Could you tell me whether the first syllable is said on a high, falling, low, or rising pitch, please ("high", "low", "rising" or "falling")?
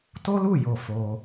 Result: high